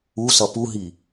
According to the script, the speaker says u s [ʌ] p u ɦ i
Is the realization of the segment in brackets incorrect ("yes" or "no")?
no